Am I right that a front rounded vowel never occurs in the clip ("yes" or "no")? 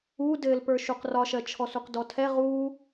yes